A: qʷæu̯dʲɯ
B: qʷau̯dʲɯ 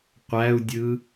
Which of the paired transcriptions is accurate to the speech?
A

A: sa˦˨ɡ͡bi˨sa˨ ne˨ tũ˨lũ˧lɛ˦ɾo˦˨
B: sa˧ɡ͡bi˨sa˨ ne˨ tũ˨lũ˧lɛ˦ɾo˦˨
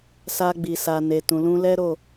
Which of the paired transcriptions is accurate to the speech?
B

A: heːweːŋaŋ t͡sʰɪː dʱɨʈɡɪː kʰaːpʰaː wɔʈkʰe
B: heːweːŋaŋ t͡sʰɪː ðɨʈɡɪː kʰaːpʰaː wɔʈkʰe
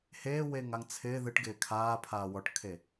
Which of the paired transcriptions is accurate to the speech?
B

